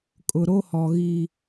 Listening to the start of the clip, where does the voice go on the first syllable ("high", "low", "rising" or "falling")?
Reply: low